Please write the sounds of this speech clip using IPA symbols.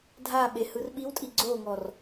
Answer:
dʱ a ɓ e h ɯ r ɓ i w tʼ i ɡ͡ǀ o ŋ ɔ r

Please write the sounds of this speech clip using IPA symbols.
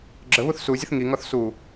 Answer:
ɡ͡ǁ ə β u θ s u zʲ ə θ ŋ i ŋ ɔ θ s u

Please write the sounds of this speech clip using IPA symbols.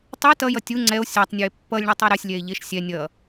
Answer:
tˤ ɯ t ʌ j ʌ tʲ u ŋ͡ǀ ɛ o̯ sʲ a tˤ nʲ u e̯ pː ʌ lʲ ɳ ɯ tˤ a ɾ ɛ sʲ lʲ ɛ e̯ ʎ e ʃ sʲ ɛ nʲ ʌ

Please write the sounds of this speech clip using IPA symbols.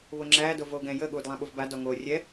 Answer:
β o ŋ͡ǁ æː d o v oː ɡ ɛ̃ j ə ɠ uː d lˠ ɛ̃ ɓ u v b a d ɔ ŋ oː rʲ ɛ

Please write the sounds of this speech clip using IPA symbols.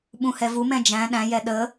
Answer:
ɓ ũ h ɛ v u m ɛ̃ d͡ʒ æ̃ ɗ æ̃ j ɛ ɗ ə

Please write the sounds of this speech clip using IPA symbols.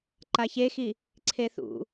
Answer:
ǃ a ç e x i | ǀʰ e θ ṵ

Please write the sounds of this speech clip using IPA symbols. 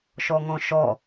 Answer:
ʃ ɔ ŋ ɔ̃ ʃ ɔ

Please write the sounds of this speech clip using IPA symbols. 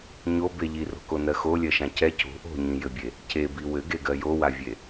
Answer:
ɲ o b e ʎ i r o̤ k o n ɜ x o lʲ ɜ ʃ ã c ɛ c o̤ ʔ o̤ ɲ ĩ j ɘ bʲ e | c e b i w ɘ ɡ e ɡ ɜ j o w a vʲ e

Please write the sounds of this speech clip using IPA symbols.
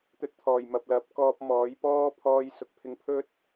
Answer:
t̪ ɵ˧ t̚ t̪ʰ ɔː˨˩ j m ɐ˨ p̚ l ɐ˨˥ p̚ k ɔː˧ p̚ m ɔː˨˥ j p ɔː˥ pʰ ɔː˧ j s ʊ˨ k̚ pʰ ɪ˧ ŋ pʰ ɵ˥ t̚

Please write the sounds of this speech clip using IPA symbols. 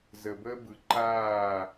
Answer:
z ə˨ b əː˦ b ɯ˨ ǃ aː˦˨

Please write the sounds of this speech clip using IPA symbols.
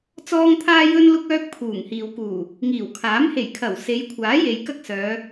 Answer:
t͡s ɔː˥ ŋ t̪ʰ aː˥ j ɵ˥ n l ʊ˥ k̚ œː˥ k̚ pʰ uː˨˩ ŋ h iː˨ w k uː˨˩ | ŋ iː˨˩ w kʰ aː˨˥ m h e˨˩ j kʰ ɐ˨˩ w s e˨˧ j kʷʰ aː˨˥ j e˨ j k ɐ˥ k̚ s œː˨˧

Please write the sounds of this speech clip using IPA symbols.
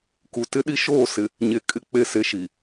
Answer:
k u˨ t ɪ˦ ɗ i˦ ʃ oː˦˨ s ɪ˨ | ɲ e˨ kʼ ɪ˦˨ k͡p e˦˨ s e˦ ʃ i˨

